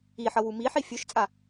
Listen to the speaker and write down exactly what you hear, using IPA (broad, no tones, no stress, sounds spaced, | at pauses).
i ħ ʌ w u m i ħ i fʲ ø ʃ t͡sʼ a